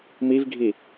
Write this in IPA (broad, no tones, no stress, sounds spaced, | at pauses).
m i v ɡʱ i